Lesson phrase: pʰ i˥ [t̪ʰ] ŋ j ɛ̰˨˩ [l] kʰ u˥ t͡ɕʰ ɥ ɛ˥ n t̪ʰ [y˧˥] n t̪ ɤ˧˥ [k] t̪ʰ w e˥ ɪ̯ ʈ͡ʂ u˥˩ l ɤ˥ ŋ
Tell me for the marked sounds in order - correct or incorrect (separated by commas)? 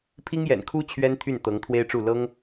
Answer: incorrect, incorrect, incorrect, incorrect